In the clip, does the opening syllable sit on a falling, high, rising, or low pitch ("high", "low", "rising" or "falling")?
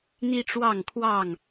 high